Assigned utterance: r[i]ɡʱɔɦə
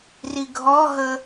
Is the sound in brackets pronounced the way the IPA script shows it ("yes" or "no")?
yes